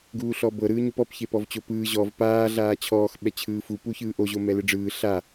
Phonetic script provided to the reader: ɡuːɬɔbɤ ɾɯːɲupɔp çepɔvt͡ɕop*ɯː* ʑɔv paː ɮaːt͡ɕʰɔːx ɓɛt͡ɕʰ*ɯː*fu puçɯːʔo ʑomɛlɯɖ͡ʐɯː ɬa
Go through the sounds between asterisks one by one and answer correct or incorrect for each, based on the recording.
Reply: correct, correct

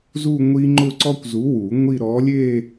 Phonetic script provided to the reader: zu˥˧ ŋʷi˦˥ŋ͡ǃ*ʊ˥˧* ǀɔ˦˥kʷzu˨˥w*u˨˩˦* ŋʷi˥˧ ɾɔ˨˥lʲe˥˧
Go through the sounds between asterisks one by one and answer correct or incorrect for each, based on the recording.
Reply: correct, correct

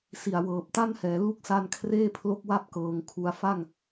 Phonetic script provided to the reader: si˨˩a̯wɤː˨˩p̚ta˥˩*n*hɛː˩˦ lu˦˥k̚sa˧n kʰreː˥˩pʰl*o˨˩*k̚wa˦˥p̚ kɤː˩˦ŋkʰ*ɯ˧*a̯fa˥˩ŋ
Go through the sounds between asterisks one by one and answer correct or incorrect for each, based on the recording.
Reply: correct, incorrect: o˦˥, incorrect: u˧

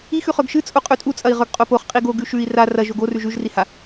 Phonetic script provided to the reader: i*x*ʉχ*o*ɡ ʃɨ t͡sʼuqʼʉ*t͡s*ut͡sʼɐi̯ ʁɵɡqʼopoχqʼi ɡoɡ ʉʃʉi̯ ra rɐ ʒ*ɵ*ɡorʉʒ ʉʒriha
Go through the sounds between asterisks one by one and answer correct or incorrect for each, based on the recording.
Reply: correct, incorrect: ɵ, incorrect: tʼ, incorrect: o

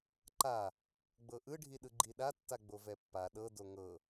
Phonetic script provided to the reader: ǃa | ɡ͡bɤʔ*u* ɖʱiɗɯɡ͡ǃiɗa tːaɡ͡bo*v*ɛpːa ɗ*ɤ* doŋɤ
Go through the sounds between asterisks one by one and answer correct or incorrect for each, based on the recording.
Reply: incorrect: ɯ, correct, correct

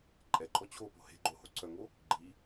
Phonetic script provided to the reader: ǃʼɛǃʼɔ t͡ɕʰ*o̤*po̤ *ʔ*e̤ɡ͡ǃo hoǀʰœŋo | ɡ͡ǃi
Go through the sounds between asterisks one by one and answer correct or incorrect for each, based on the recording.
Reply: incorrect: o, incorrect: h

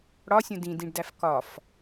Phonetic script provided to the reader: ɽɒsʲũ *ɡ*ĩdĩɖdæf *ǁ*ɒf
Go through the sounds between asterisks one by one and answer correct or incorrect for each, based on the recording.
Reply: incorrect: d, incorrect: k

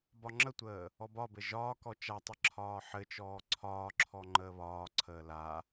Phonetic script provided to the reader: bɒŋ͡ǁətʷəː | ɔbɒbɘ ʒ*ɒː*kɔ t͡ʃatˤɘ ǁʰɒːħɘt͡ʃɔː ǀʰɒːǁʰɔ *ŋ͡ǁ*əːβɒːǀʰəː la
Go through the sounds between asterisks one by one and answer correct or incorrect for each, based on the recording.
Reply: correct, incorrect: ŋ͡ǃ

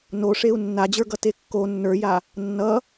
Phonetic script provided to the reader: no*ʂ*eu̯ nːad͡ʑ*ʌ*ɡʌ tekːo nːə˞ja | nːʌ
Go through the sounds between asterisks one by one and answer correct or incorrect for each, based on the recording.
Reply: correct, incorrect: ə˞

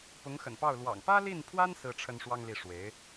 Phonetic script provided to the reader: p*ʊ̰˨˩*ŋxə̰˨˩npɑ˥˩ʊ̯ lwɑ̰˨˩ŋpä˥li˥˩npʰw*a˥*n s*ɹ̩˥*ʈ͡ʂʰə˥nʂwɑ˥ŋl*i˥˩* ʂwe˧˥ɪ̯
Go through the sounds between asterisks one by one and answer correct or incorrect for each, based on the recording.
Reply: incorrect: ʊ˧˥, correct, correct, correct

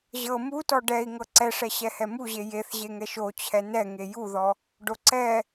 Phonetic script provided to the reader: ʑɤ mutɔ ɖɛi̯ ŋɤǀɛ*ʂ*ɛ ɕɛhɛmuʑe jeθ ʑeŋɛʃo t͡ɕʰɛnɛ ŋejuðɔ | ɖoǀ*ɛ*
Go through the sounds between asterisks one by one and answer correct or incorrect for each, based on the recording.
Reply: correct, correct

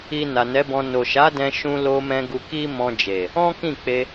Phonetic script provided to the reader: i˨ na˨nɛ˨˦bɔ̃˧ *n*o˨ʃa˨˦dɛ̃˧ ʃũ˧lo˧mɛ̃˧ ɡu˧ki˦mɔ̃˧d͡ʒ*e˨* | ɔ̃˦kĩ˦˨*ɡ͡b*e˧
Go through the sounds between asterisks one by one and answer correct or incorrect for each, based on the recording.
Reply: correct, correct, incorrect: k͡p

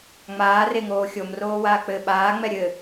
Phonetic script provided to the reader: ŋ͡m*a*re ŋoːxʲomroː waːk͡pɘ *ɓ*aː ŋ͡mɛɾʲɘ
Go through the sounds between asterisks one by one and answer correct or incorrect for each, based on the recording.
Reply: incorrect: aː, correct

